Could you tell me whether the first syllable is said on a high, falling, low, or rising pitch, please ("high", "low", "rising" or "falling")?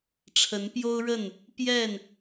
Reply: rising